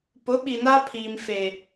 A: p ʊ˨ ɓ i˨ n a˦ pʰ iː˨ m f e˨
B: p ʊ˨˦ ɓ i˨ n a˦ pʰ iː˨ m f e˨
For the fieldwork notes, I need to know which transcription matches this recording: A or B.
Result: B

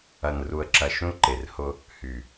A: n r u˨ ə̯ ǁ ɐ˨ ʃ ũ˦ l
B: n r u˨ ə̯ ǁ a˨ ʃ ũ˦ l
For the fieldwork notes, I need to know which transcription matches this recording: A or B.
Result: A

